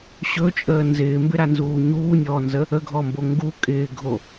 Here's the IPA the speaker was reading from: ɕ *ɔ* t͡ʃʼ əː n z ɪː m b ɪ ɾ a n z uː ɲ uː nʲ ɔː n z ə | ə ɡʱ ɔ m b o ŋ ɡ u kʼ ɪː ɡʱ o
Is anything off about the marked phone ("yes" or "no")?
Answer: yes